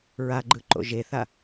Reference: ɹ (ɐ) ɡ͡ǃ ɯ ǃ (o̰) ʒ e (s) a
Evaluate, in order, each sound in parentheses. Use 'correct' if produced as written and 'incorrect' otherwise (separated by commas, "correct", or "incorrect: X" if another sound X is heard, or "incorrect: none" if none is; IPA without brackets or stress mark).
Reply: incorrect: a, correct, incorrect: θ